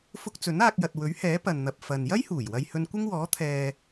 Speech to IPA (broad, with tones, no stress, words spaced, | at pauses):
fʊ˧k̚ t͡sɵ˨˥naː˧k̚jɐ˨t̚ wɵ˨˥ɥhɛː˨˥ pɐ˨nn̪ɐ˨p̚ fɐ˨n jɐ˥jhuː˨˩j wɐ˧jhɵ˧n kʷɪ˥ŋwɔː˨˥t̪ʰɛː˨